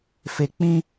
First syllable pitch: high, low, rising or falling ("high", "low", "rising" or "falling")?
low